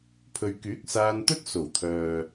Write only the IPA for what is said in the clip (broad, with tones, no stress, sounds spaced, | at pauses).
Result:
pʰ ɵ˨ ɥ k yː˨˥ k̚ s aː˧ n t̪ ɵ˥ t̚ s o˨˩ w t̪ʰ œː˨